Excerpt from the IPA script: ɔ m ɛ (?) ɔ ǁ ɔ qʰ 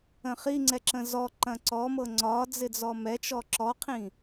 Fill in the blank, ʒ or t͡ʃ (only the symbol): t͡ʃ